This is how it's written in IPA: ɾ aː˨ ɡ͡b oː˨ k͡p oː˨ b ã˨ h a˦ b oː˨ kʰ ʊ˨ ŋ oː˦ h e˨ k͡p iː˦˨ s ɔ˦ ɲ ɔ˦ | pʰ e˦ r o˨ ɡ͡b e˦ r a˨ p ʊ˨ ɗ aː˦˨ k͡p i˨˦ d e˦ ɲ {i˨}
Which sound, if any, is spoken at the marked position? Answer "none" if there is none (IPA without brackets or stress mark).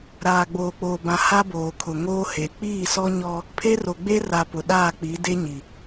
i˨